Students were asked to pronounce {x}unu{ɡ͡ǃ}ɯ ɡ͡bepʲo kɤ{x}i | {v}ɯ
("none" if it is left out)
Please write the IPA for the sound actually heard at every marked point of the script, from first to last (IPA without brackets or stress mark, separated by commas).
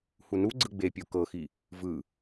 h, ɡ͡ǀ, x, v